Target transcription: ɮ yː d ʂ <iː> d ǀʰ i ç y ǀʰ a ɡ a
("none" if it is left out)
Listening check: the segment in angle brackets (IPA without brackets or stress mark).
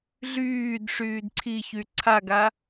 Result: yː